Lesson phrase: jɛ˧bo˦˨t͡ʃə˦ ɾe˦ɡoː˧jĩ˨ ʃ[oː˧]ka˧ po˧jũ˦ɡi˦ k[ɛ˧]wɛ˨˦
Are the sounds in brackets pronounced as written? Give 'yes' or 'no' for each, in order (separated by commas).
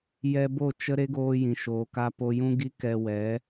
no, yes